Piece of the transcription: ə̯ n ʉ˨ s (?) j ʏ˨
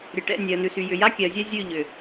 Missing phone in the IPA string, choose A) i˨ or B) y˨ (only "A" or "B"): B